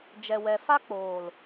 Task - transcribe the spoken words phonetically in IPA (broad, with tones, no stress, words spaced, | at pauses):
d͡ʒɛ˨wɛ˨ fa˦k͡poː˨l